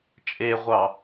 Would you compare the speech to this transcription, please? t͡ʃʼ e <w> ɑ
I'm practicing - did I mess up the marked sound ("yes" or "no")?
yes